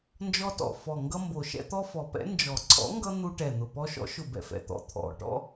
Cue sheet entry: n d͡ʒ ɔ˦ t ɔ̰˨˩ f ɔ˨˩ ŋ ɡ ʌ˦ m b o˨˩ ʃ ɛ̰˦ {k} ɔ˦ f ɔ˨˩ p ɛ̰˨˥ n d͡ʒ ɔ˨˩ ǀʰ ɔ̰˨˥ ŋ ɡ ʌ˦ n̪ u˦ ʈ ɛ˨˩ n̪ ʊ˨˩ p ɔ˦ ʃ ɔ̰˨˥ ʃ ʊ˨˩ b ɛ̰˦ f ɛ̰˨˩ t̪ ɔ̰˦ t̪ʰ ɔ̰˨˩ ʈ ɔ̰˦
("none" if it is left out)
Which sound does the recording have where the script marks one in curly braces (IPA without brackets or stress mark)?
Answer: t̪